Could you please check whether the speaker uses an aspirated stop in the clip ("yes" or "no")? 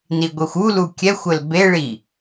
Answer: no